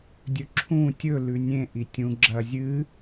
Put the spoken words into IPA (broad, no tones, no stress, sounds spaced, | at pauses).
dʲ ɵ ǁʰ ũ tʲ ɵ l ʉ nʲ ẽ ʔ i tʲ ũ ɡ͡ǁ ɐ zʲ ɨ